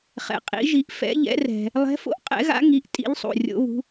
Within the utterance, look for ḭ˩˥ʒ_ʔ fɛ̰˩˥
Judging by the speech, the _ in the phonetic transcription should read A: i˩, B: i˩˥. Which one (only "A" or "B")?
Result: B